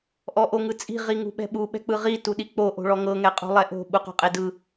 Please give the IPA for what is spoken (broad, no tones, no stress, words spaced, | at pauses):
ʔɔʔoŋɯt͡sʼi̤ ʁiŋṳɓɛ̤ɓu ɓɛ̤k͡pɯʁi tuɗik͡po ʔo̤ɭɔŋɤ ŋɛqʼṳlˠɛʔo̤ ɓuqo̤qʼedɯ